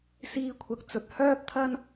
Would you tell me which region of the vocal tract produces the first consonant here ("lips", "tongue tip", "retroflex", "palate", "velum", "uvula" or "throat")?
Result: tongue tip